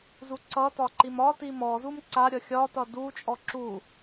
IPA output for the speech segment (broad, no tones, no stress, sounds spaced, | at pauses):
z u ǀ ʌ t ɒ ǃ i m ɒ t i m ɔ z u m ǀ a ɾʲ ʌ xʲ ɒ t ʌ d u t͡ʃʼ ɔ ǁ u